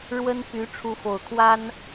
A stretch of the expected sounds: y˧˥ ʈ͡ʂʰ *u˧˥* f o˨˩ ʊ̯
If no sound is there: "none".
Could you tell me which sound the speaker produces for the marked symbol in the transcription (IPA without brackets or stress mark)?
u˧˥